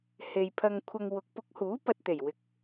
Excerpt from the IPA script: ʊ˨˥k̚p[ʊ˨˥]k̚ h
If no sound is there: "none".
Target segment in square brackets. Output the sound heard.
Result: ʊ˨˥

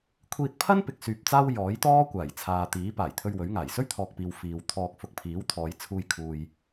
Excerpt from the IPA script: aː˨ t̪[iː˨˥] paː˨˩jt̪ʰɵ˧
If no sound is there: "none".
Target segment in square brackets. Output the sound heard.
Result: iː˨˥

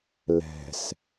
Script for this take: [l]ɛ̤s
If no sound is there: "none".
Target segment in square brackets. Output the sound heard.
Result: l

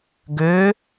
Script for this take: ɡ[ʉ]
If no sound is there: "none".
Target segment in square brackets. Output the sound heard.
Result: ø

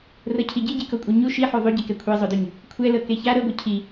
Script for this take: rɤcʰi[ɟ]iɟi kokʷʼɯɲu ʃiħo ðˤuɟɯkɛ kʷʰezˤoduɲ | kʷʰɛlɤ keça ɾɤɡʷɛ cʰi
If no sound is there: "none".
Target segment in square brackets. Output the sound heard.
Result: ɟ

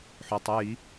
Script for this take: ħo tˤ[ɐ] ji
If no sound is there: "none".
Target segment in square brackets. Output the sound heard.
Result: ə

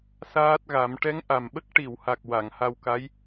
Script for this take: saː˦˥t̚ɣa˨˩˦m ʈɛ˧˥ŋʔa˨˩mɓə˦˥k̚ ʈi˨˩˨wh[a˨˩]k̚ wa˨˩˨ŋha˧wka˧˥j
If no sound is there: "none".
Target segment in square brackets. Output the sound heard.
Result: a˨˩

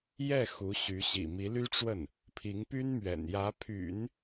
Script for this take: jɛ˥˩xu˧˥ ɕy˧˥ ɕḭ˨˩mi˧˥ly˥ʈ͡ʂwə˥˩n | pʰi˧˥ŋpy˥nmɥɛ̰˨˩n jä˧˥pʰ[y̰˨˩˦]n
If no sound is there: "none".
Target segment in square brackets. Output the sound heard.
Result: y̰˨˩˦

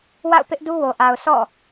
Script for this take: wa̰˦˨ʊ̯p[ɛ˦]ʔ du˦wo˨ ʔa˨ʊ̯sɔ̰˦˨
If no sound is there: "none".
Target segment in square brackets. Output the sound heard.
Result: ɪ˦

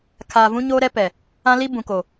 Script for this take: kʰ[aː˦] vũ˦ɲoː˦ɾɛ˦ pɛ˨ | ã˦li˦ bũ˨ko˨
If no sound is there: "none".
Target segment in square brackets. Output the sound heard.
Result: aː˨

